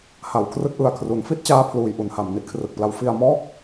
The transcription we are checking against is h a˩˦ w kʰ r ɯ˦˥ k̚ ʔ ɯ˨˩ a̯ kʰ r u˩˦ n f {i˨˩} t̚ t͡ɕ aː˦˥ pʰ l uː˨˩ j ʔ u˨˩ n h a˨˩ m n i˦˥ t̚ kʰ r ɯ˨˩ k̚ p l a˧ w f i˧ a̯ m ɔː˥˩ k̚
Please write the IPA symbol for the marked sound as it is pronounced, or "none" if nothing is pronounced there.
i˦˥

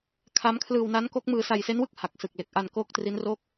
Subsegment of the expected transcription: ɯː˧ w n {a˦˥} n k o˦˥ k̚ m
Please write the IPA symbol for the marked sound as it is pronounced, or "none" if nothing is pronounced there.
a˦˥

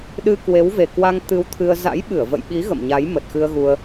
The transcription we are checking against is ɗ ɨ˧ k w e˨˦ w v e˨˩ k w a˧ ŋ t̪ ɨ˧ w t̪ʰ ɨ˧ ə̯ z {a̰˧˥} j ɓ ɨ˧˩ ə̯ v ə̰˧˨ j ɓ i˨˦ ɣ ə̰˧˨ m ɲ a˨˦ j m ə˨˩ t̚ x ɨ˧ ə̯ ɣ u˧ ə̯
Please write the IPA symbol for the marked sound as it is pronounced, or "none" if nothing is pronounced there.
a̰˧˥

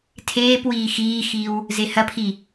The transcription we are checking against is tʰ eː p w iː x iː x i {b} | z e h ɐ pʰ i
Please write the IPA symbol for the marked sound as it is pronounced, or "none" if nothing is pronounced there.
w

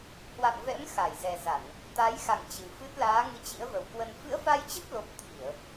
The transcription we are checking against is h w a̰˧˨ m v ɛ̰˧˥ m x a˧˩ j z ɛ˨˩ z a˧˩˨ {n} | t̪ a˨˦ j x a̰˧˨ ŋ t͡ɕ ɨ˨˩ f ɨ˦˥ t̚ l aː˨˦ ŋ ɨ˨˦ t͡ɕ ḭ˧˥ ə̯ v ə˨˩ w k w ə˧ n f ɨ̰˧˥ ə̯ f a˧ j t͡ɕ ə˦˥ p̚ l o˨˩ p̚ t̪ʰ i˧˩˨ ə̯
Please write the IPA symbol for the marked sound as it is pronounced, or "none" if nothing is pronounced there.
n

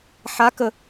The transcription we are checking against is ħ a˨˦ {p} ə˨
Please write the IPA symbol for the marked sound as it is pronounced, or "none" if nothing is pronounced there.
k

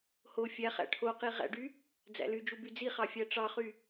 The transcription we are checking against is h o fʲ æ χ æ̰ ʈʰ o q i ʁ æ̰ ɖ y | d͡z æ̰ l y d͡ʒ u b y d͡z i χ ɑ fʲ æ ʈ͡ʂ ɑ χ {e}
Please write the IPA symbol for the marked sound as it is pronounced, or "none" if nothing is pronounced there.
y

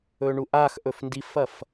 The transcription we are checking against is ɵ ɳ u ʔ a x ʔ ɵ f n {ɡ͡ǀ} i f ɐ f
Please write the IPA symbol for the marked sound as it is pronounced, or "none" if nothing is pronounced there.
d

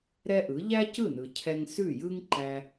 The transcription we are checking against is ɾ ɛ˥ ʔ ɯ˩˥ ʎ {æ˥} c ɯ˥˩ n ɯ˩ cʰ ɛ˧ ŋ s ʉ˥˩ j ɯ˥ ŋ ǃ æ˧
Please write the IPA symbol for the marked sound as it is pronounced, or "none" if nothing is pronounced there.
æ˥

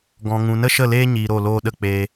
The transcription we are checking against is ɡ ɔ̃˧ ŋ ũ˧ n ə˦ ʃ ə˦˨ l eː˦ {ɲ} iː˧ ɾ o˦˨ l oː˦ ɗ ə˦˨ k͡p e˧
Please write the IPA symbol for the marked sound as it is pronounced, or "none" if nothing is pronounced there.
ɲ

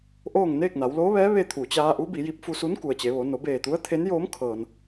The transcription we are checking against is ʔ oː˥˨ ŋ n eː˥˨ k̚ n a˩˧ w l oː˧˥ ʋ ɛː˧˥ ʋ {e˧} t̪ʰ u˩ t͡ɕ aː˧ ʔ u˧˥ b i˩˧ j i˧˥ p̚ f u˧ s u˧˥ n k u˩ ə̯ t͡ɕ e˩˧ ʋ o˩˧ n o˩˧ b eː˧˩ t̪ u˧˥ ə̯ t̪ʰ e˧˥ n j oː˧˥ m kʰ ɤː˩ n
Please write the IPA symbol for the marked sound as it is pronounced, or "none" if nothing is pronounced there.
e˧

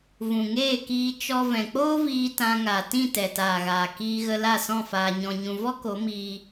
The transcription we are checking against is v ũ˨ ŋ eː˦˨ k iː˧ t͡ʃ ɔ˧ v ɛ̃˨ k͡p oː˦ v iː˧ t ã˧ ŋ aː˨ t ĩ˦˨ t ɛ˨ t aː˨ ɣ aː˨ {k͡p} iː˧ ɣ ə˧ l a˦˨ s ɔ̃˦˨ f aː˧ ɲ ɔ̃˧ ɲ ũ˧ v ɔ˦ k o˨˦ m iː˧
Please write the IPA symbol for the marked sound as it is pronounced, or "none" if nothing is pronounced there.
k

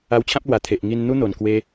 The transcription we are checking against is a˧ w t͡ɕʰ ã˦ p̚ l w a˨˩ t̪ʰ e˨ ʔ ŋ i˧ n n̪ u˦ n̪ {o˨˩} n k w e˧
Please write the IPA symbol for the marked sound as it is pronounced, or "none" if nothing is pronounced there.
o˨˩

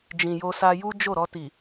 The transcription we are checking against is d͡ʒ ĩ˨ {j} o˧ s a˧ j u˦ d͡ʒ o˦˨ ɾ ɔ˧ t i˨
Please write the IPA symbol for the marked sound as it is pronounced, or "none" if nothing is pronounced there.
j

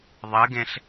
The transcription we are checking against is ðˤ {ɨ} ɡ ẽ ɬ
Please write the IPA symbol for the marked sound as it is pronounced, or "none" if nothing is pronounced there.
ɨ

